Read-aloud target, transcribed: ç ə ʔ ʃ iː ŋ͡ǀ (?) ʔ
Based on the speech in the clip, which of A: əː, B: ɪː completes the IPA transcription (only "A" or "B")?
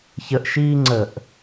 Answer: A